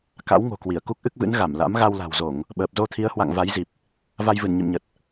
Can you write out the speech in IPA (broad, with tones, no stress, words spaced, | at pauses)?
ka̰˧˥wŋo̤˨˩kwi˧˩ə̯ ku˦˥k̚ʔɨ˦˥k̚vɨ̰˧˥n ɣa˧˩mla̰˧˥m ɣa˧wla̤˨˩wzo˧˩˨ŋ | ɓəː˨˩p̚zo˧t̪ʰi˨˦ə̯hwa̰˧˨ŋ va˨˦jzi˨˩p̚ | va˧jvɨ˧˩nɲḭ˧˨m ɲə˨˩t̚